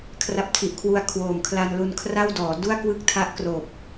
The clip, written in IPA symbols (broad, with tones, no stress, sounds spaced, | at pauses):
kʰ r a˦˥ p̚ tʰ i˨˩ ʔ kʰ w u˧ a̯ kʰ w oː˨˩ m kʰ l a˧ n l u˧ n kʰ r a˥˩ w d ɔː˩˦ d u˥˩ a̯ k w ɯ˥˩ k̚ tʰ a˦˥ ʔ k r oː˨˩ p̚